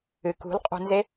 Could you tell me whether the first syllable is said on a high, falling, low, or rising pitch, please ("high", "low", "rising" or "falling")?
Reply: low